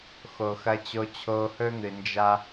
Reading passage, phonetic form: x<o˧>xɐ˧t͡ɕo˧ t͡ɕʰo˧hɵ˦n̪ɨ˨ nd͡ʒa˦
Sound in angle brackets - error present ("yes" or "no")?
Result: yes